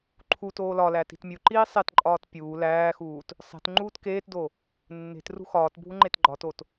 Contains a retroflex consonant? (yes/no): no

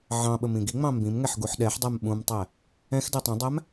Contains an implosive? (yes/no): yes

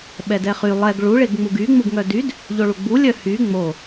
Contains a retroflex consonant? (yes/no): yes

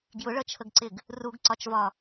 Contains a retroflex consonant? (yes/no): yes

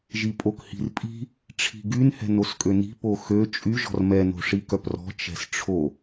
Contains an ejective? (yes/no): yes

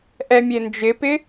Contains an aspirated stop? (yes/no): no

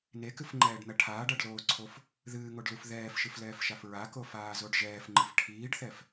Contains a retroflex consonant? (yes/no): yes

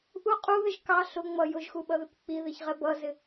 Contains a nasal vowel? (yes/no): no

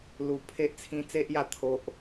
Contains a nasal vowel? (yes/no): yes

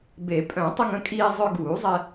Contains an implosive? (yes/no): no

